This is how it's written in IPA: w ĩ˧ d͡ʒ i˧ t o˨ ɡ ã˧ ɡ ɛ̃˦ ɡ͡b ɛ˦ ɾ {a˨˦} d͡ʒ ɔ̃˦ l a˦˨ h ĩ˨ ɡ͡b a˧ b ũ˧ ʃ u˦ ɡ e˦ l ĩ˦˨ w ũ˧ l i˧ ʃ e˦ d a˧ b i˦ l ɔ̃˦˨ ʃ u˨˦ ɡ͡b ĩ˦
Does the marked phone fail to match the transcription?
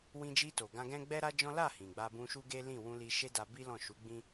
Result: yes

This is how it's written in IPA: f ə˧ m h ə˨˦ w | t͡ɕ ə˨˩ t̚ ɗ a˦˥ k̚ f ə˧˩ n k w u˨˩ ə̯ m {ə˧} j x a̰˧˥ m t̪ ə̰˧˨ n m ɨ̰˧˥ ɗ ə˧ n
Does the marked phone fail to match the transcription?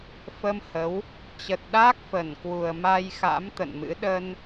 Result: yes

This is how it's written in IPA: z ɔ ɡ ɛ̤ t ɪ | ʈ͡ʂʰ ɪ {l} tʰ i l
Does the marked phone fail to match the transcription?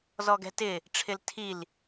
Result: no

